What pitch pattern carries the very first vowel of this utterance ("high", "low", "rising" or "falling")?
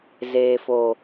low